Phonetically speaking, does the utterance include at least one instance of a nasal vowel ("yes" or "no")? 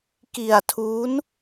no